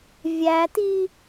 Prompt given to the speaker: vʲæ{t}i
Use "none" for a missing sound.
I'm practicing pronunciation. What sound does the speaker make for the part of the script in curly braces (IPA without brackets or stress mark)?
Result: t